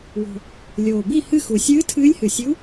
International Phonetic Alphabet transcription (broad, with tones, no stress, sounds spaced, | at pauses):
w o̤˨˩ | lʲ oː˨˩ b i˥˨ h ɨ˥˨ x u˨˩ sʲ ɨː˧˥ tʰ ɨː˧˥ lʲ h ɨ˨˩ sʲ u˧˥